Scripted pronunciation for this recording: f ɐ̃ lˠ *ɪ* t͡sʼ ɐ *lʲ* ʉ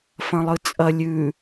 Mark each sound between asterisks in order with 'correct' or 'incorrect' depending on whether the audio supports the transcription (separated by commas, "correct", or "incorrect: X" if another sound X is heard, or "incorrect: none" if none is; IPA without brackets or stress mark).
incorrect: ɨ, correct